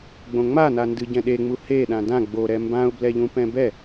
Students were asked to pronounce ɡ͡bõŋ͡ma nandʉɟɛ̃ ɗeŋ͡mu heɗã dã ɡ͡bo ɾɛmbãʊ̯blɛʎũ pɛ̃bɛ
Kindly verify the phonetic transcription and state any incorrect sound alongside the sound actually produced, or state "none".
ʉ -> ɨ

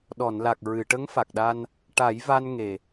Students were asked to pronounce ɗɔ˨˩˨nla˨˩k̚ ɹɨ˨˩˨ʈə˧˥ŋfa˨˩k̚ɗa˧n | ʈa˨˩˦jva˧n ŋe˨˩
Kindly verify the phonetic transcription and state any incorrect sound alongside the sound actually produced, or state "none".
none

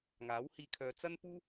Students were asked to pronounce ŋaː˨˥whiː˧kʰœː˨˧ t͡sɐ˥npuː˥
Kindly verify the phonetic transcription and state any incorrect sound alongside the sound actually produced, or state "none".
none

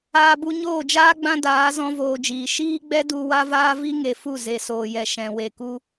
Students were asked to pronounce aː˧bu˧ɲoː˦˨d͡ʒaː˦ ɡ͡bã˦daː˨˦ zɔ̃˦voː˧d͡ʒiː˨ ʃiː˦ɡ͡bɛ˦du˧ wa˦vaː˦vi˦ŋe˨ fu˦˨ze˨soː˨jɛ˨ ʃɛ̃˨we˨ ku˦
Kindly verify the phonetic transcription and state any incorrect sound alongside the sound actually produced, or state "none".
none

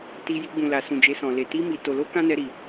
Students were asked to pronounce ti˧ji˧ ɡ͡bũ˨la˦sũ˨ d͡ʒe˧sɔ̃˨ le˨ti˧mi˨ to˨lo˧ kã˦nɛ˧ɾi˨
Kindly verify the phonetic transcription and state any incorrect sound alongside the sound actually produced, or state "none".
a˦ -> a˨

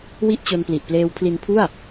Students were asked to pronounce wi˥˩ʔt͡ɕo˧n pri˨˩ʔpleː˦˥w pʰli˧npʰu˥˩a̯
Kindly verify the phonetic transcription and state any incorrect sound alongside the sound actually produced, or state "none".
r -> l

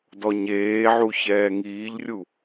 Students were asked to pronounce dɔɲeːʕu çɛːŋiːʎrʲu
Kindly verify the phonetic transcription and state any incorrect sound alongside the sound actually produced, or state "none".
none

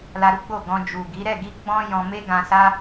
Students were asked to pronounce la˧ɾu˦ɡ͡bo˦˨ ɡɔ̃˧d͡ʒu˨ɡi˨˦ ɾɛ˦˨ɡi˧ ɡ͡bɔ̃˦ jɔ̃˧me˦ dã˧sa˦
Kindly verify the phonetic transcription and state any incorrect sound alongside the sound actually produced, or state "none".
d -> ɡ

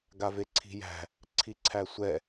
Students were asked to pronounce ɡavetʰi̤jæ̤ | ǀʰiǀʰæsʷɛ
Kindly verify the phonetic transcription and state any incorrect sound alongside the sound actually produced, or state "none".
tʰ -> ǀʰ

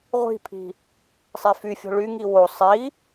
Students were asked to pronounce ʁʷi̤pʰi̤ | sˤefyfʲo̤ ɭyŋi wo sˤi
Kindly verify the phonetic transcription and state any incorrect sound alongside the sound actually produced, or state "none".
none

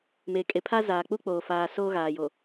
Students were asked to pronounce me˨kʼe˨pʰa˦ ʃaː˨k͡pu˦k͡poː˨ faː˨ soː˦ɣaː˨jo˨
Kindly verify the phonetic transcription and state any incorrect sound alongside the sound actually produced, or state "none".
ʃ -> z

